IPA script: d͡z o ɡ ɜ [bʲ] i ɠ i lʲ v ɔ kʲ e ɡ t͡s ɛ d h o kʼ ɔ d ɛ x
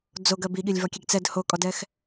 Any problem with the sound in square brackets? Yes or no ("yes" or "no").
yes